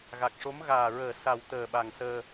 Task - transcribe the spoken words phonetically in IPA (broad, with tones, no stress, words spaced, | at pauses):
ɣa˨˩k̚ʂo˧˥m ɣaː˨˩ɹəː˨˩ sa˨˩w t̪əː˨˩ɓa˨˩ŋsəː˧